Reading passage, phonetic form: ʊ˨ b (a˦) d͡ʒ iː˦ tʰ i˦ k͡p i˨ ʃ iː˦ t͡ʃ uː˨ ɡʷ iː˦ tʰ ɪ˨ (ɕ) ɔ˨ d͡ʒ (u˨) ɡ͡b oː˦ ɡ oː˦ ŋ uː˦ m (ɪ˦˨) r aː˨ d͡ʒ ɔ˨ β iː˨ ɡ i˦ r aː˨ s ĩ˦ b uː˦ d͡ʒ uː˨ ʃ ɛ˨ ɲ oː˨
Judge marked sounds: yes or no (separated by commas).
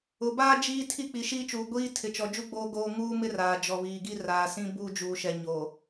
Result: no, no, no, no